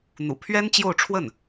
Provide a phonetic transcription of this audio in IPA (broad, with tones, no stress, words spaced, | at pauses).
n̪ṵ˨˩pʰɥɛ˥n t͡ɕjo˥˧ʊ̯ʈ͡ʂʰwə˥˩n